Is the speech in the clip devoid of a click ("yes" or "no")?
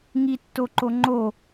no